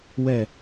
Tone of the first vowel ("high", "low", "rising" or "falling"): falling